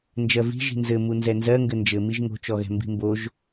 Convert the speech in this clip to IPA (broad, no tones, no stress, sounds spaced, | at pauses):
n d͡ʒ ɜ v i̤ ʒ i̤ n z ɘ m u n z ɛ n z ɜ ŋ ɡ ɘ n d͡ʒ ɘ m i ʒ ŋ o̤ t͡ʃ ɔ ɣ ɛ̤ m b i̤ m b o ʒ